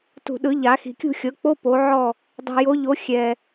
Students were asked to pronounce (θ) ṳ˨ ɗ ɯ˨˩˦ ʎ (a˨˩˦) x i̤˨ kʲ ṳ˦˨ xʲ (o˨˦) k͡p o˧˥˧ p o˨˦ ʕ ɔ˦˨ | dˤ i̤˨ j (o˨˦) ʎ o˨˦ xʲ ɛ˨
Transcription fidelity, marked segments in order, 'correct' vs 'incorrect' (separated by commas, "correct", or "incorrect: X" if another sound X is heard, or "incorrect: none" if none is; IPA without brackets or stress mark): incorrect: t, correct, incorrect: ɤ˨˦, correct